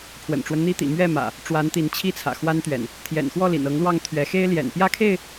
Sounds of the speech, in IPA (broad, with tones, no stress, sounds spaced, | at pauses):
pʰ w ə̰˨˩ n ʈ͡ʂ w ə˦ n n̪ i˦ t̪ ḭ˨˩ m ɥ ɛ˥˨ m ä̰˨˩ | ʈ͡ʂ w a˨˦ n t̪ i˨˦ n t͡ɕʰ i˥˨ t͡sʰ ä̰˨˩ x w a˦ n t̪ ɥ ɛ̰˨˩ n | t̪ʰ j ɛ̰˨˩ n x w ɔ˥˨ l ḭ˨˩ n ɤ˨˦ ŋ l w ɑ˥˨ ŋ t̪ʰ ɥ ɛ˨˦ x e˦ ɪ̯ l j ɛ̰˨˩ n p j ä˥˨ kʰ e˥˨ ɪ̯